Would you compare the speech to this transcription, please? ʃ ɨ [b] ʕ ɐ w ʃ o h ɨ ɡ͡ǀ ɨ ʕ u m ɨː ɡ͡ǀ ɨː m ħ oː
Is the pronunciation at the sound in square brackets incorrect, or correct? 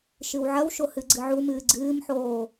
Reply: incorrect